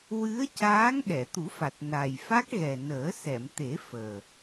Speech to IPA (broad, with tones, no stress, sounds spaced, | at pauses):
w ɨ˧˥ ə̯ c aː˧˥ ŋ ɗ ɛ˨˩˨ t̪ u˨˩˦ f a˨˩ t̚ n a˨˩ j f a˦˥ k̚ ɣ ɛ˨˩ n əː˨˩˦ s ɛ˨˩˨ m t̪ e˨˩˦ f əː˨˩